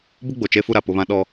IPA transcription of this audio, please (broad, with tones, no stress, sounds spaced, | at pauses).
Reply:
b ʊ˦ ɡ͡b o˨ t͡ʃ e˦ f u˦ ɾ a˨ p ʊ˦ β ã˦ ɗ ɔ˦